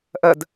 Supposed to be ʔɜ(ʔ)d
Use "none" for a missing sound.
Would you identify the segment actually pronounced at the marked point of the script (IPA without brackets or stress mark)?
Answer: none